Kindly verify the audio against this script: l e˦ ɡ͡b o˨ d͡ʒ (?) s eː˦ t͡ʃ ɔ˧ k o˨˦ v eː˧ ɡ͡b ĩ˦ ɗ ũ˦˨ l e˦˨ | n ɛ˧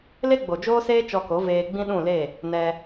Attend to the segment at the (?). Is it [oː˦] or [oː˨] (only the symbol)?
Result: oː˦